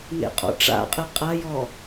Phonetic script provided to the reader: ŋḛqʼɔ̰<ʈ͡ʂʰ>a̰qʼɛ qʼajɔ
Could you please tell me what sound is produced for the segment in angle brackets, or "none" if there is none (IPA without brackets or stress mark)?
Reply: ʈ͡ʂ